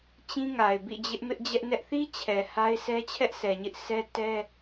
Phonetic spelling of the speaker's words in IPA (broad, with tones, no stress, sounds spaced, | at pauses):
t͡ɕ ĩ˦ ŋ a˨ ɪ̯ b ḭ˦˨ d͡ʑ ɪ˦ ʔ m ɪ˦ ʔ d͡ʑ ɛ˦ ʔ n ɛ˦ ʔ θ i˦ t͡ɕʰ ɛ˨ h a˦ ɪ̯ s ɛ˦ t͡ɕʰ ɛ˦ ʔ s ɛ˨ ɲ ɪ˦ ʔ s ɛ˦ t ɛ˦